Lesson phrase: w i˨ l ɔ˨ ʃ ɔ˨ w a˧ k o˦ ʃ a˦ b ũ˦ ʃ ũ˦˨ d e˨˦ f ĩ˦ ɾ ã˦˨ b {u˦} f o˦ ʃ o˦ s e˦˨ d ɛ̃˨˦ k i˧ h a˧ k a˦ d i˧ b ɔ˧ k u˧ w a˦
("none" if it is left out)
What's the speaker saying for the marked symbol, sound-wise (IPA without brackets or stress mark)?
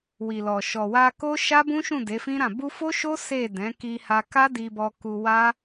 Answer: u˧